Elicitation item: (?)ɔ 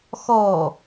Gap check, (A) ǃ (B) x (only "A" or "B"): B